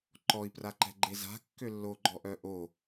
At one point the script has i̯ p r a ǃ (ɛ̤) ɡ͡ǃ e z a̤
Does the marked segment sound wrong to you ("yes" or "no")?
no